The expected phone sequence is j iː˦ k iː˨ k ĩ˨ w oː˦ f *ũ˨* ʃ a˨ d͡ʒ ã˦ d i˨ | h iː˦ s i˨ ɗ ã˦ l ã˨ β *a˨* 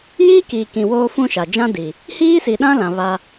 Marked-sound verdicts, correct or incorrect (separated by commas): incorrect, incorrect